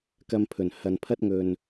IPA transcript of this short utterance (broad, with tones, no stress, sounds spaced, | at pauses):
k ɐ˧ m pʰ ɵ˨˩ n h ɐ˨ n pʰ ɐ˥ t̚ ŋ ɵ˨ n